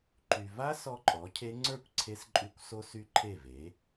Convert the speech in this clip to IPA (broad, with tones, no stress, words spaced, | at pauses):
ǃy˨ va˦˥ sɔ˦˥ǃʼɔ˩˥cʰe˦˥ ŋ͡ǀə˞˥˩kʷ ǀʰe˦˥sǃʼy˥˩kʷ so˦˥ sy˦˥ǃʰe˥˩ve˩˥